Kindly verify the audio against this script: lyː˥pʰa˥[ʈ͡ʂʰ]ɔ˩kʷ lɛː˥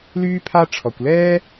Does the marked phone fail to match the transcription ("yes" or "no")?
no